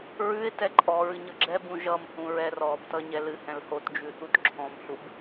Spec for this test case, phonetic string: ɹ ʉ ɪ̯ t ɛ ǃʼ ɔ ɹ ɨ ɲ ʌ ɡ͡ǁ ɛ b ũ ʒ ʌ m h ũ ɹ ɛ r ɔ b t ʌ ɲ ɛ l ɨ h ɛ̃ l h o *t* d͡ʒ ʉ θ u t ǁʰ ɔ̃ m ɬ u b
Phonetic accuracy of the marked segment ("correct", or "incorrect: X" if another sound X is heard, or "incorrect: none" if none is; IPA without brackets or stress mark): correct